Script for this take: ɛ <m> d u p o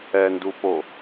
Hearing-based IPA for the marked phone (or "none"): n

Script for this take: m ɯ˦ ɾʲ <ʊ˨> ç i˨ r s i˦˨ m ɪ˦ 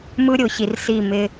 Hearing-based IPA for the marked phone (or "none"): ʊ˨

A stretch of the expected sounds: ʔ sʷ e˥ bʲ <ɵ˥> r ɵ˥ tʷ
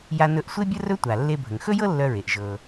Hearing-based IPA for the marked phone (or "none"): ə˥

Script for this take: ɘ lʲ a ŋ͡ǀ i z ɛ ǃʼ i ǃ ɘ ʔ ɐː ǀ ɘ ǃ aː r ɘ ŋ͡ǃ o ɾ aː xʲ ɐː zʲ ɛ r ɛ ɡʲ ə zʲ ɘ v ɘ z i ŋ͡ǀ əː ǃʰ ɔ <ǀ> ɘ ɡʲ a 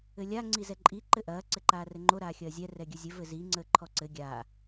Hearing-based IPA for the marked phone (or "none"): ǀ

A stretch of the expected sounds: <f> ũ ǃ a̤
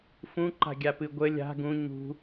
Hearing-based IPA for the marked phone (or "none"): f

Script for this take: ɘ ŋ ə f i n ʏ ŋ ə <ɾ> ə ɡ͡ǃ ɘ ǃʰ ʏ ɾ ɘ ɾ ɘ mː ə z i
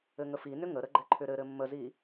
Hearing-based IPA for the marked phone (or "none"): ɾ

